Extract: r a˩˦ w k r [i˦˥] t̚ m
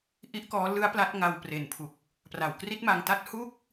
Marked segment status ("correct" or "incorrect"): correct